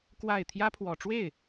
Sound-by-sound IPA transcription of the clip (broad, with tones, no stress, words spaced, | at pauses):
kwa˥˩ɪ̯ t̪ʰjä˥pʰwɔ˨˩ʈ͡ʂwe˥˩ɪ̯